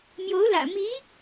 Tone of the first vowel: rising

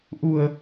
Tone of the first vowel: low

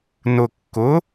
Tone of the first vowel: low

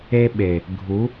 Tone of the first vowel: high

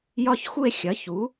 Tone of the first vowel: falling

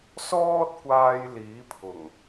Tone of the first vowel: high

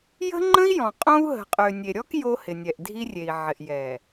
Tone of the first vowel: high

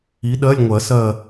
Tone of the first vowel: rising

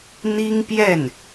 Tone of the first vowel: high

